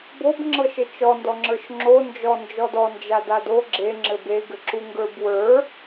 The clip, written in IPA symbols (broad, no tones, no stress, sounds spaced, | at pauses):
b o b ŋ͡ǁ ɤ ʃ ɘ t͡ʃ ɔ n d ɔ ŋ͡ǁ ə˞ ʃ ŋ͡ǁ o n d͡ʒ ɔ n d͡ʒ ɔ d ɔ n d͡ʒ a d a d o ɡ͡ǁ e ŋ͡ǁ ɘ b e ɡ ɘ ǁ u ŋ ɡ ə˞ b w ə˞